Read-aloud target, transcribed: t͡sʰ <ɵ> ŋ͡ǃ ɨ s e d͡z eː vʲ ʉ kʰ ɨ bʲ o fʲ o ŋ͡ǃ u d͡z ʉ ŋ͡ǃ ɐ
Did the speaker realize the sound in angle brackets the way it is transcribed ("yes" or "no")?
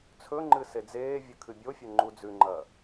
yes